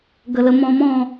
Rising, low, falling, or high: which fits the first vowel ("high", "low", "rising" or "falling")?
low